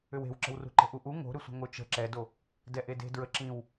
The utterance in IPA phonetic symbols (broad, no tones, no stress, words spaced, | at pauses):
ʏwe̤wǁə̤wrṳ ǃə̤ʔuʔu ŋo̤ɾʏsʷə̤ ŋot͡ʃə̤ ǁɛdo | dɛʔede̤ dɹəǁĩw